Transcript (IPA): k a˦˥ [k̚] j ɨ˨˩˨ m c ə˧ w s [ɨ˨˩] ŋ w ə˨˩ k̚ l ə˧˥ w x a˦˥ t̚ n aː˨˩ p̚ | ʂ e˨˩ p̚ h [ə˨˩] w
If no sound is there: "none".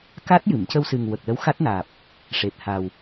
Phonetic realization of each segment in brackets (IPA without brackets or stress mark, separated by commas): t̚, ɨ˨˩, a˨˩